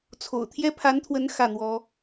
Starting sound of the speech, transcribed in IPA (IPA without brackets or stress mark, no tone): t͡sʰ